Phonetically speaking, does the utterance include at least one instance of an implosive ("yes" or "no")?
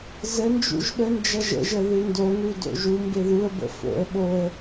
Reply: yes